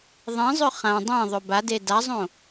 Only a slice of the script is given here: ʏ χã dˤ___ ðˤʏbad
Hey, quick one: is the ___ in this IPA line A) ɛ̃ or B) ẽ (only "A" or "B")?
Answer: B